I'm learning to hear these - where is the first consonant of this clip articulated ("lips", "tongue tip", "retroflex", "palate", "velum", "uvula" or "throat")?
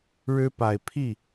retroflex